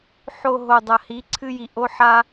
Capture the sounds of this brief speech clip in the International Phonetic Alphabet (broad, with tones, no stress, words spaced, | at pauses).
ħo˨ ɦo˨dˤɐ˨hi˨˦ ǀʰɨ˦ji˧ ʔo˦ħa˦